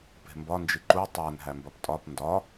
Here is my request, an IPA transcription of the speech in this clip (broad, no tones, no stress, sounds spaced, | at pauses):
p e̤ m b ɒ n d͡ʒ i ǃ u tˤ æ n ɦ æ m b ɒ p tʼ ɒ p n d ɒ